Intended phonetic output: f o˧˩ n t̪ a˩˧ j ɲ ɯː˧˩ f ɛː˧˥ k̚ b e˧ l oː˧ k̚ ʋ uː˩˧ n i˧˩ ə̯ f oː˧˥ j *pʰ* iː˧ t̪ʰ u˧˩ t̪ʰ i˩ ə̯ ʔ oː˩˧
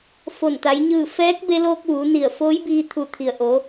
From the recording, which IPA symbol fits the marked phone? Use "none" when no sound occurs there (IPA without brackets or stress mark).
b